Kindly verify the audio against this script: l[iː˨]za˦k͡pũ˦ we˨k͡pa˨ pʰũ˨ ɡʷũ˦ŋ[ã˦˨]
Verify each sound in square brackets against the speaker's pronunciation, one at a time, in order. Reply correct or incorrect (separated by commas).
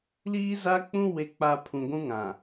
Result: incorrect, incorrect